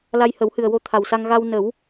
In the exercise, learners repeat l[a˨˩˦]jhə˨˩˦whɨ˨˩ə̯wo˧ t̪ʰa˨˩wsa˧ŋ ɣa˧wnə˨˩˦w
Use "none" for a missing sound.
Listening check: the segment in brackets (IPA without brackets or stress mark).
a˧